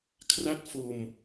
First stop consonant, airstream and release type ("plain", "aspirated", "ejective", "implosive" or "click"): aspirated